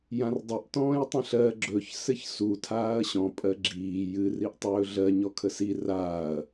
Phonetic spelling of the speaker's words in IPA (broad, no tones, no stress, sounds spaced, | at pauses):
j ã r dˤ ɘ ʔ t ɔ̃ː j tˤ ə̃ ɬ ɜ ɡ͡ǁ ɵ ç s ɘ ç s u tʰ aː ɐ̯ ɕ ɔ̃ pʼ ɜ ɡ͡ǁ iː j ɨ r i ʔ tˤ ɵː ɮ ɜ ɲ ɔ kʰ ə s i r aː ɐ̯